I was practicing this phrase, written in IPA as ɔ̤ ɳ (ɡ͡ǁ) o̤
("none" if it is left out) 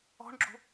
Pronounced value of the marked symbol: ɡ͡ǁ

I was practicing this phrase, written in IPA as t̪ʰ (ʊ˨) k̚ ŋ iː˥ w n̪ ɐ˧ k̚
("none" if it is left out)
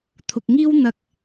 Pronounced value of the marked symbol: ʊ˨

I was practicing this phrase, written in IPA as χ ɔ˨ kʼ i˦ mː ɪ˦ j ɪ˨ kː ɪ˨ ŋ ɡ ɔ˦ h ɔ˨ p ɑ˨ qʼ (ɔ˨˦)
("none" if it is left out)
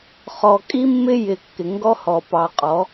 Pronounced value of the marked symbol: ɔ˨˦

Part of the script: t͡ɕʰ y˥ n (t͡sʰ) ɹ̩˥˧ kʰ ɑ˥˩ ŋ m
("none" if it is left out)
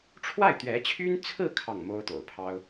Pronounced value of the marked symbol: t͡sʰ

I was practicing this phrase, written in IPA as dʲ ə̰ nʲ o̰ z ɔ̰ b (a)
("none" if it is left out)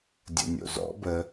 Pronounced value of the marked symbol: ə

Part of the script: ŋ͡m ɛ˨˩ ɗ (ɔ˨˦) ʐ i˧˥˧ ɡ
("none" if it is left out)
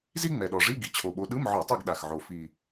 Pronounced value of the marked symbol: ɔ˨˩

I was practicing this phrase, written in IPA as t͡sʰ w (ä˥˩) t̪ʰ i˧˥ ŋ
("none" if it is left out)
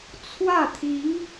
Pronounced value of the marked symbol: ä˥˩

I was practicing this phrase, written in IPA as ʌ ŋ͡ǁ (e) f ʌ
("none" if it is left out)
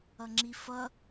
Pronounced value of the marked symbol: i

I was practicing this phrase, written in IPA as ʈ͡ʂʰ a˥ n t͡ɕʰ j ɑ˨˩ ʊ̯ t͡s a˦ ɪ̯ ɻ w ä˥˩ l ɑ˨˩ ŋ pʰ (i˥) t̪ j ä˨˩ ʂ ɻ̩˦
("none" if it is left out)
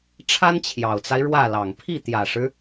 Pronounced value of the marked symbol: i˥˩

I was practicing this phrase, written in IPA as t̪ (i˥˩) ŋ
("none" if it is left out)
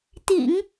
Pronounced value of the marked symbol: ḭ˨˩˦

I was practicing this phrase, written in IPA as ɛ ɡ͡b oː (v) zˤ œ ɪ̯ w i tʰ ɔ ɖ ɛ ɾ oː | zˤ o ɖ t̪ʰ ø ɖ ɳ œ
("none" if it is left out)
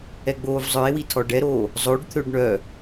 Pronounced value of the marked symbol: v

